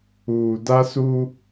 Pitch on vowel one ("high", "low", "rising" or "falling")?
low